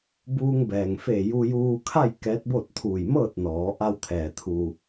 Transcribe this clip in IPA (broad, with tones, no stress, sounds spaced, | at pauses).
b uː˧ ŋ b ɛː˩ ŋ f eː˧˩ j u˧ j uː˧ kʰ a˥˨ j k ɛː˧˥ t̚ b o˥˨ t̚ t̪ʰ uː˧˩ j m ɤː˥˨ t̚ n ɔː˩˧ ʔ a˧ w t̪ʰ ɛː˩ t̪ʰ u˩